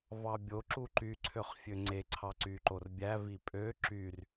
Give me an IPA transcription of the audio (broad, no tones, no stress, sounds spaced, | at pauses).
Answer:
v ɑ bʲ o ǁ u ǃ y ǀʰ ø χ fʲ ø ŋ͡ǀ e ǀʰ ɑ ǀ y ǃ o r bʲ æ v i pʼ ø ǁ y r